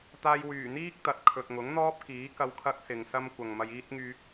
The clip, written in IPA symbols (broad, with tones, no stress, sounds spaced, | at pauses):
t̪ aː˧ j w yː˨˩ n̪ iː˥ k̚ t̪ ɐ˨ t̚ kʰ ɵ˨ t̚ ŋ ʊ˨˥ ŋ n̪ ɔː˥ p̚ k iː˨˥ k ɐ˧ w kʰ ɐ˥ k̚ s ɪ˨ ŋ s ɐ˥ m kʷ ɐ˨ ŋ m ɐ˧ j iː˥ t̚ ŋ yː˧ k̚